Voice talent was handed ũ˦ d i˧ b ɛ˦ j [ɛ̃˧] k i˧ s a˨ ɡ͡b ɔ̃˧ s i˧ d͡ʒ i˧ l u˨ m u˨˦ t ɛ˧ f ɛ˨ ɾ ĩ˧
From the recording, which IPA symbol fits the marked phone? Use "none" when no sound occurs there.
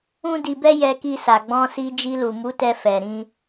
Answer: ɛ˧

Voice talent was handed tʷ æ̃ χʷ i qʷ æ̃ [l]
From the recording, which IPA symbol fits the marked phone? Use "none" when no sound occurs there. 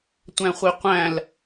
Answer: l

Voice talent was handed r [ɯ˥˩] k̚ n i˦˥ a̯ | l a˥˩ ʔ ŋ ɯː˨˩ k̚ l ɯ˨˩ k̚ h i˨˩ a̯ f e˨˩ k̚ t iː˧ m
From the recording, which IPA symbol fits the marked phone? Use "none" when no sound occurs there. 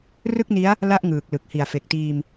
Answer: ɯ˥˩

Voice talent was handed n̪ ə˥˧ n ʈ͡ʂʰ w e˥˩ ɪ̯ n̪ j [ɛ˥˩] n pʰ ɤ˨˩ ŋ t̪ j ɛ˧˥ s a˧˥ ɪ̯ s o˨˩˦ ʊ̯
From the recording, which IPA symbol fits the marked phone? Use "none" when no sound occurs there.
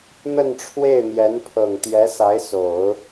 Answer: ɛ˧˥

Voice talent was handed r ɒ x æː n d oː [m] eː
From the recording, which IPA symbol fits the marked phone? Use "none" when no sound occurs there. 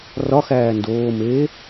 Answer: m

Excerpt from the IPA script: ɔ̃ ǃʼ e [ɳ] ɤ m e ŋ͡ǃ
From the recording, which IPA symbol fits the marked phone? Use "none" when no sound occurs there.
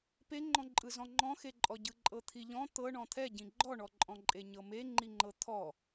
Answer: ɲ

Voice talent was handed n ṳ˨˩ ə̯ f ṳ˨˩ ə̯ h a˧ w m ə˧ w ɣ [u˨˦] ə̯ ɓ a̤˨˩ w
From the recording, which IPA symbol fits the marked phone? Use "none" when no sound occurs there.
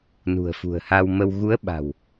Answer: u˨˦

